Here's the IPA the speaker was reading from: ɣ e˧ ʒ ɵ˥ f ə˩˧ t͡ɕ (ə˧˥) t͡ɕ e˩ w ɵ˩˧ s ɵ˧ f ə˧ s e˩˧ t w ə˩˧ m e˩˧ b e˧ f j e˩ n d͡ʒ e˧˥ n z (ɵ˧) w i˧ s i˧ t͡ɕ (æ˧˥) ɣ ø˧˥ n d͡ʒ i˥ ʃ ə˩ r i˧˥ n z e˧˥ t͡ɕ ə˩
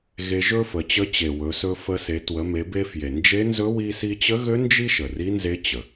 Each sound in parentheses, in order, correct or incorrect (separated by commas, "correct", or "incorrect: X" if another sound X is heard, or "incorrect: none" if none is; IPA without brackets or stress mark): correct, incorrect: ɵ˧˥, incorrect: ə˧˥